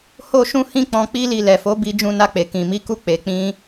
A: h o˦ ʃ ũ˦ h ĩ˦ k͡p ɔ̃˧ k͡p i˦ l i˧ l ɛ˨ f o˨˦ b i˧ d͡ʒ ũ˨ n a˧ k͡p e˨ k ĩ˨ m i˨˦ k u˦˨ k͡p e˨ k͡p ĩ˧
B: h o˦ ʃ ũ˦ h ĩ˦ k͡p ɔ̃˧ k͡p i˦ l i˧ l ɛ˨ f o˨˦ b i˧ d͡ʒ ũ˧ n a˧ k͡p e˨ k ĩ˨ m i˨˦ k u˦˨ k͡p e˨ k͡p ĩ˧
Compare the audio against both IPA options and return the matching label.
B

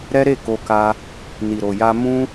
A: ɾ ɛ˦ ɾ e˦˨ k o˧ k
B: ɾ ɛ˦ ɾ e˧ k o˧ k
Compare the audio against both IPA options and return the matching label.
A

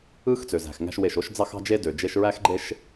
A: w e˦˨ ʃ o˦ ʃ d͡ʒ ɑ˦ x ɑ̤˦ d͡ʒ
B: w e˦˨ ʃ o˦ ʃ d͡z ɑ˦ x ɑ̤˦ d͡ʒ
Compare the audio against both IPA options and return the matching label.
B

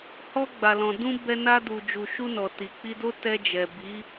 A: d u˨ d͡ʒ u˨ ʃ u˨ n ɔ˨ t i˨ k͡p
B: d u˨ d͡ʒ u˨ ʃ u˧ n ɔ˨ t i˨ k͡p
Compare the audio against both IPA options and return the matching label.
B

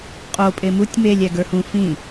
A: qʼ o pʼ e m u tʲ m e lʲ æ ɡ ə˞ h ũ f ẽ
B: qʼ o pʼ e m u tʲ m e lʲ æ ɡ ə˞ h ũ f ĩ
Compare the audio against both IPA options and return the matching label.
B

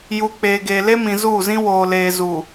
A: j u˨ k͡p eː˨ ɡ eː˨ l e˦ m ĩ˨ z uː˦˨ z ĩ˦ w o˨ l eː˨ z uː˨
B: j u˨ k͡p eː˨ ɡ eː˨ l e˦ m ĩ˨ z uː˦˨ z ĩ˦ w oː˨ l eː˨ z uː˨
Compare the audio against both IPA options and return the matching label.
B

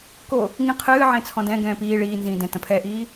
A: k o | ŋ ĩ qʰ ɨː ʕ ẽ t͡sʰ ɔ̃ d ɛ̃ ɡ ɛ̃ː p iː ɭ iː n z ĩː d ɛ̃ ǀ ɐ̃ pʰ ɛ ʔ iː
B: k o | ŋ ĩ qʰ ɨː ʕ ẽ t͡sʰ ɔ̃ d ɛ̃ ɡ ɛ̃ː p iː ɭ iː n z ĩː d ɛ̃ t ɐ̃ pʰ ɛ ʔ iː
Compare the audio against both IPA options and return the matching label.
B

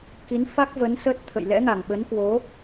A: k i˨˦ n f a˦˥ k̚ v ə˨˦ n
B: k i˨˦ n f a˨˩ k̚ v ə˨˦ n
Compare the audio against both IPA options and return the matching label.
A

